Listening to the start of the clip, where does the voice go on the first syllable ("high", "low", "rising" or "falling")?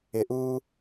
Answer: low